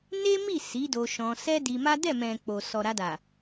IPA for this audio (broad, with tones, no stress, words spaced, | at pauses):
ne˦mi˦˨ si˨˦do˧ʃɔ̃˧ sɛ˦di˧ma˦ dɛ˦˨mɛ̃˨ k͡po˨sɔ˨ɾa˧da˨